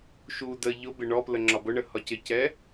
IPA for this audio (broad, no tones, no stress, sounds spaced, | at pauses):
ʃ u d ə ʎ ʊ b ɪ ɳ ɔ p l ə ŋ͡ǁ ɒ b ʊ ɳ ə h ɒ c ɪ c ɛ